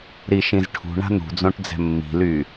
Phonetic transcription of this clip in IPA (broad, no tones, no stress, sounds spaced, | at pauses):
ɾ i ʃ ĩ z ʈʰ ṳ ɳ a̤ n̪ ṳ d͡z õ ʈ d͡z ɛ̤ mː i̤ l y